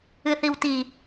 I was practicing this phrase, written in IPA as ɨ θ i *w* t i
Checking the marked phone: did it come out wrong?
no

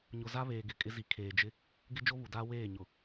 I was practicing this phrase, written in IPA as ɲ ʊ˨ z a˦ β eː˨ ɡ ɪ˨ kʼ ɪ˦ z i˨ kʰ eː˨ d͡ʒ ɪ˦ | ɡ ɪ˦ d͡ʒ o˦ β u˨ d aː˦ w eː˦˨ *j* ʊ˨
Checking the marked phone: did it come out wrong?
yes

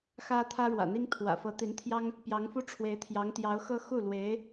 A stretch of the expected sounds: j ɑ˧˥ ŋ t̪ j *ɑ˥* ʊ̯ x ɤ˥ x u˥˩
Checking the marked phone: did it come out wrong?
yes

